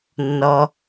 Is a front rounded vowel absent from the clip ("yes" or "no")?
yes